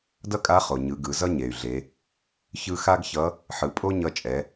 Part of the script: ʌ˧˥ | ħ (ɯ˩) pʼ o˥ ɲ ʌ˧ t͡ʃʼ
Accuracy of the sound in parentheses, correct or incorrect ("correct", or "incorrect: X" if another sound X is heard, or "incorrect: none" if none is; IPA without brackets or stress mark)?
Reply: correct